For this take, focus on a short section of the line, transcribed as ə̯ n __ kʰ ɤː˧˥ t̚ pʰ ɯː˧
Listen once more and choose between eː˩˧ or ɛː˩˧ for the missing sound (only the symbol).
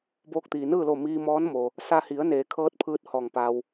eː˩˧